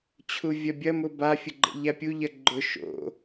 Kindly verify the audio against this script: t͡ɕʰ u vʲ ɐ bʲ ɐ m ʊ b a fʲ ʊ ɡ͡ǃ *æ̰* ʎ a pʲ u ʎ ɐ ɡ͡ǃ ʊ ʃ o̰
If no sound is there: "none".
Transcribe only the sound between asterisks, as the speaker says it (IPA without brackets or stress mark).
ə̰